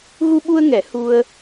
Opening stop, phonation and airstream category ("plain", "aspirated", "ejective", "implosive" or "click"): implosive